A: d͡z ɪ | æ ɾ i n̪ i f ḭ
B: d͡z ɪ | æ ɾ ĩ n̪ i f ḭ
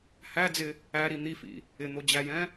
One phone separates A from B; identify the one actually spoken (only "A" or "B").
A